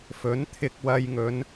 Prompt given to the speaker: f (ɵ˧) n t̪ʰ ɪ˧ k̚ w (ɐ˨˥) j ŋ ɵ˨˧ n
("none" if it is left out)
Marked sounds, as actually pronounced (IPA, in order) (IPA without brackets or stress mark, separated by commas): ɵ˨˥, ɐ˧